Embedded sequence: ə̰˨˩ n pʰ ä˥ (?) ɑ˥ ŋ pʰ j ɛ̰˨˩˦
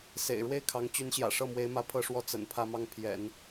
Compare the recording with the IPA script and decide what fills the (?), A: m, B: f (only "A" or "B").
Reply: A